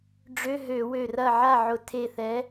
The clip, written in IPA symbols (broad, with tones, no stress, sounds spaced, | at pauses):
ɖ͡ʐ ø˧˥˧ ɦ ø˧˩˧ w ø˧˩ r ɐ˥˨ ʕ a˥˨ ʕ ʊ˧˩˧ tʰ e˧˩ θ ɛ˨˥